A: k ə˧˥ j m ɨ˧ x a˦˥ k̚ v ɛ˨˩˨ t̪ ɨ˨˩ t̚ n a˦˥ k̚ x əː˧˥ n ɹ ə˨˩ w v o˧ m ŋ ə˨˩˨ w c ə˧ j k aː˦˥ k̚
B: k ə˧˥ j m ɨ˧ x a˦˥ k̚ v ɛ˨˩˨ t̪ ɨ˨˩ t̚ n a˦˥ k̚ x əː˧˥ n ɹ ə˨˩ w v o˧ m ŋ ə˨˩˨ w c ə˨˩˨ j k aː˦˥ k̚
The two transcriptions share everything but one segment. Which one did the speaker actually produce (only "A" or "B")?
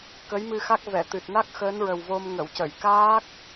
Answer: B